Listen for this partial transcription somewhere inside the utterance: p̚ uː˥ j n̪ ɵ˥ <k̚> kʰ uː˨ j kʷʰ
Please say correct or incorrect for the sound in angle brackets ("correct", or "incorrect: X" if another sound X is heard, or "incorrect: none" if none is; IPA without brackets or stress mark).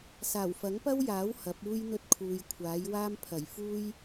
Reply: incorrect: t̚